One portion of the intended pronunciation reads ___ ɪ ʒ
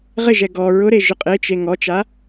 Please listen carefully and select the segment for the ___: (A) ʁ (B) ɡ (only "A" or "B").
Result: A